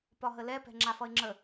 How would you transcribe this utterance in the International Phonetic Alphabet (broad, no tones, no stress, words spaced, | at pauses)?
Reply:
pɒɦəlɛpɛ̤ ŋ͡ǁafʌɪ̯ŋ͡ǁə